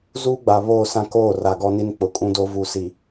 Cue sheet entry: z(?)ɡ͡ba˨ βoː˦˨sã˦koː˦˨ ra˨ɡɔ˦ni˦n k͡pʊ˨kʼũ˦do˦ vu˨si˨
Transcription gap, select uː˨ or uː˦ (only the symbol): uː˦